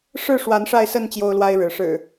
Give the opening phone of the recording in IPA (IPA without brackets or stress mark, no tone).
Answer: ʂ